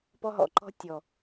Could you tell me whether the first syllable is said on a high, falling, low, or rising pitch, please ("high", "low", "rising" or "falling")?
high